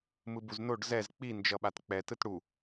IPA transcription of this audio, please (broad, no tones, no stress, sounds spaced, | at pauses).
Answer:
m ɯ b u z n o ɖ z ɛ z k͡p i n d͡ʒ ʌ ɓ a t k͡p ɛ t ɯ t ɽ u